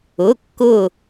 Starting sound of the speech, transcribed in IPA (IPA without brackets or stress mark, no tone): ʊ